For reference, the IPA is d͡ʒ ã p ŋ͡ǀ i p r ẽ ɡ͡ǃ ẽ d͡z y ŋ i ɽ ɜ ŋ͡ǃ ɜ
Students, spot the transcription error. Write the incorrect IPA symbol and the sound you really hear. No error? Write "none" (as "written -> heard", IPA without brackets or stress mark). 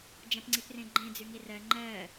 ɽ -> r